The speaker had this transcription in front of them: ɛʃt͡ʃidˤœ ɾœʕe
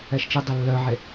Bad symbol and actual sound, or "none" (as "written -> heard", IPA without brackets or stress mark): ɾ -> lː